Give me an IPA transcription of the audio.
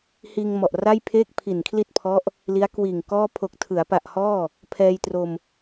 h iː˧ ŋ m ɔ˨˩ ʔ r a˥˩ j pʰ eː˥˩ k̚ pʰ i˨˩ n kʰ l i˥˩ t̚ pʰ ɔ˦˥ ʔ | l i˦˥ a̯ k w iː˨˩ ŋ k ɔː˥˩ pʰ o˨˩ k̚ tʰ ɯ˩˦ a̯ p a˨˩ ʔ h ɔː˥˩ | pʰ ɛː˧ j t r o˧ m

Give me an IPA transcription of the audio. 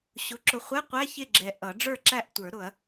ɕ ʊ˩˥ ǁ ʊ˨ χʷ ɛ˧˥˧ qʷ æ˧˥˧ ç ɪ˥˨ ɡ͡ǁ ɛ˨ ʔ ʌ˨˩˦ ɖ͡ʐ ə˞˥˨ ǁ æ˥˨ ʔ tʷ ə˞˨˩˦ ɾ ʊ˨˩˦ ɐ̯

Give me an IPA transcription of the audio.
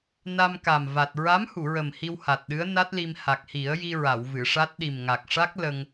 n a˧ m k a˨˩ m v a˨˩ t̚ ɹ a˧˥ m h u˨˩˨ ɹ ə˨˩ m h i˧ w h a˨˩ t̚ ɗ ɨ˧˥ ə̯ n a˦˥ t̚ l i˧ m h a˨˩ k̚ h i˨˩˦ ə̯ j i˧ ɹ a˨˩˨ w v ɨ˨˩˨ ʂ a˦˥ t̚ ɗ i˨˩ m ŋ a˨˩ k̚ ʂ a˦˥ k̚ l ə˧ ŋ

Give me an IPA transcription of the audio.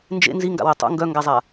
n d͡ʒ ḛ n z i ŋ ɡ a̰ w æ tˤ ṵ ŋ ɡ œ ŋ ɡ a zˤ a

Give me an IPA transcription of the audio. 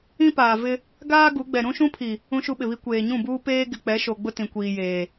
ĩ˦ p aː˨ v ɪ˦ | ɡ aː˦ ɡ u˨˦ ɡ͡b ɛ˨ ɾ ũ˦ ʃ ũ˦ pʰ i˨ | ũ˦ ʃ u˦ ɓ ɪ˨ β i˦ kʷ eː˨ ɲ ũ˦˨ b uː˦ p eː˦ ɡ ɪ˨ k͡p ɛ˨˦ ʃ o˨ ɡ͡b ʊ˦ t ĩ˨ kʷ iː˨ j eː˨

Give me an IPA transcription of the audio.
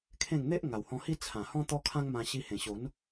kʰ ẽ˥˧ ŋ n̪ e˦ ʔ ŋ a˨˩ w h ɔ̃˧ h i˦ t͡sʰ ã˨˩ h ɔ̃˦ t̪ ɔ˦ kʰ ã˦ ŋ m ã˧ ɕ i˧ h ẽ˨˩ ɕ o˨˦ n

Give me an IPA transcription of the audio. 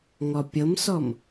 ŋ ɔ pʲ ɤ m s ɔ m

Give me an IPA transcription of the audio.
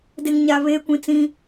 d e˨ ŋ ɲ a˨ β eː˦ kʷ ĩ˨ t͡s ĩ˦

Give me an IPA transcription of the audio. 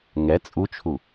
ŋ ɛ t͡sʼ u t͡ʃʰ u

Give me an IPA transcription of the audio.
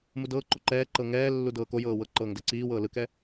m u d ɤː ǃ o ǃ ɛː ǃ ɤ ŋ ɛː lː u d ɤː k o j ɤː w ɤ ǃ ɤː ŋ d ɛ ǀ iː w ɤː l ɯ k ɛ

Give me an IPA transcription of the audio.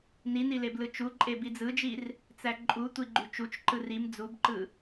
n i n i l e b l ɯ t͡ʃ u ǃʼ e b i d͡z ɯ d͡ʒ i r | t͡s æ ǃʼ u tʷ i ɡ͡ǃ y t͡ʃ u t͡ʃ ǃ ɯ r i m d͡z u b ǃ ɯ

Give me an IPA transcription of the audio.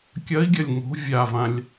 kʲ ɐ i̯ ɡʲ ɐ lʲ ŋ o̤ vʲ a v ã lʲ

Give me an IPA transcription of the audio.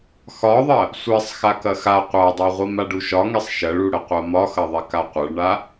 x ɒ ðˤ ɐ | sʷ ɛ sˤ x a k ɐ x a qʷ a dˤ a ʁʷ i m a ɖ u ʃ ɒ ŋ ɛ sˤ ʃ ɐ ɭ u ɽ ə qʷ a m ɒ x ɐ ðˤ ɛ k a qʷ ɐ ɭ ɳ a

